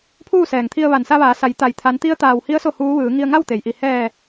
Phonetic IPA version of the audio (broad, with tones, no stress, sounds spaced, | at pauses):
pʰ uː˥˨ s ɛː˩ ŋ t̪ʰ i˧ ə̯ ʋ a˩ n s a˧ ʋ aː˩˧ s a˩˧ j t̪ a˩ j t̪ʰ a˩˧ n t̪ i˧˥ ə̯ t̪ aː˩ w h i˧˥ ə̯ s o˥˨ h uː˧˥ ʋ ɯː˩˧ ŋ i˧ ə̯ ŋ a˥˨ w t̪ e˩ j ʔ i˧˩ h ɛː˧˩